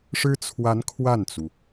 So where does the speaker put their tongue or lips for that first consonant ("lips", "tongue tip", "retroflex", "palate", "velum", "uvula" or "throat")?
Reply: retroflex